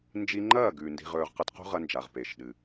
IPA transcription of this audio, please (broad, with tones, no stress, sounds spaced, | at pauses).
n d͡ʒ i˧ ŋ͡ǃ ɐː˦˨ ɡ ʉ˨ n d i̤˧ ʁ ɵː˧ ʁ q ɐ˦ t q ṳ˦ ʁ ɐ˧ n d͡ʒ a˨ ʁ p e˨ ʃ ɗ ɨ˨